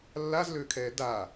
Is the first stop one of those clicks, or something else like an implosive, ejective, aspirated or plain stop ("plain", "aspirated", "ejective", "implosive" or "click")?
aspirated